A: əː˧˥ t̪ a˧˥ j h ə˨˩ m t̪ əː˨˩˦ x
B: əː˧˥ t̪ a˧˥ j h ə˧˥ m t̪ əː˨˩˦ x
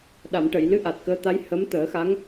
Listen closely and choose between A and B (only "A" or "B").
B